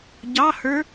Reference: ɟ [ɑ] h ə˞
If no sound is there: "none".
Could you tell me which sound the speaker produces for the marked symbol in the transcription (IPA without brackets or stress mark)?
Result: ɑ